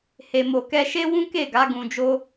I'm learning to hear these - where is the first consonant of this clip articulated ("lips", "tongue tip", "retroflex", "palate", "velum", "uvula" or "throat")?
throat